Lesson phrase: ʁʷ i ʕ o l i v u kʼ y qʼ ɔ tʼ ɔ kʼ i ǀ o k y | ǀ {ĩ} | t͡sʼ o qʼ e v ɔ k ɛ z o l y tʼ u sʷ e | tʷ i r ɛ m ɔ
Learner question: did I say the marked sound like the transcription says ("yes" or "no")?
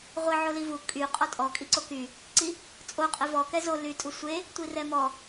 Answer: no